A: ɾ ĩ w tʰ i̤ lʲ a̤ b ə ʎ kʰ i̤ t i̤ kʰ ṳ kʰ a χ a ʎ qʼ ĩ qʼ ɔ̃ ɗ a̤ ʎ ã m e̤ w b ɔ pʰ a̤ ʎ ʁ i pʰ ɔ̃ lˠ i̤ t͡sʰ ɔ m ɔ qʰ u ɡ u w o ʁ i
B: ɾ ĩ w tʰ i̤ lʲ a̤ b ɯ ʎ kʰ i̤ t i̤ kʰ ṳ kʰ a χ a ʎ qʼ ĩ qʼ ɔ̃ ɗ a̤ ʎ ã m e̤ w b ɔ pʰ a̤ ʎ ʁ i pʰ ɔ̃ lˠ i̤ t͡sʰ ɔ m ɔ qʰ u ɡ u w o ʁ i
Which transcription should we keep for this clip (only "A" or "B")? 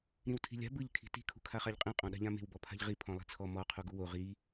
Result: B